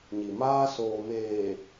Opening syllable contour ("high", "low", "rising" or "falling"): low